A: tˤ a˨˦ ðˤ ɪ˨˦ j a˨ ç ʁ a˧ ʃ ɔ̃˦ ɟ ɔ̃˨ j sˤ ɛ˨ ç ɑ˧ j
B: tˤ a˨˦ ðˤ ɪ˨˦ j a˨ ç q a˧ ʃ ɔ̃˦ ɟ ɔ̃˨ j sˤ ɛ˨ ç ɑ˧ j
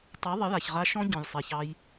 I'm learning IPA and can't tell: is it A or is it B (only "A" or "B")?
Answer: A